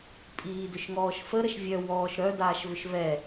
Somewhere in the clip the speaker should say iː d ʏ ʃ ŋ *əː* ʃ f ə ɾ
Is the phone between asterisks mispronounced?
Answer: yes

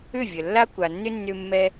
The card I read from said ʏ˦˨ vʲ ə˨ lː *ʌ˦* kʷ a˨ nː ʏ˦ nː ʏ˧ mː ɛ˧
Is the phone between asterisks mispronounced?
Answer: yes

